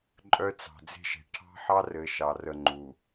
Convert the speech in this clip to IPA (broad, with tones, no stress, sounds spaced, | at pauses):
ǃʼ œ˦ t͡s ɑ̤˨ d͡z e̤˦ ʃ e̤˨ ʈʰ ɑ̤˦ ħ ɑ˦ r ɘ˨˦ ʃ ɑ˨ r ə˦˨ ŋ͡ǃ u˨